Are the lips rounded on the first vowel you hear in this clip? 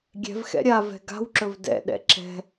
no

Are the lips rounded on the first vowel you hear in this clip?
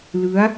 no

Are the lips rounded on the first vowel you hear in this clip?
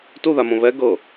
yes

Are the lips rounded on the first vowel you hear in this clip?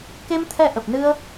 no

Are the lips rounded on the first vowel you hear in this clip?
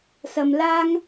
no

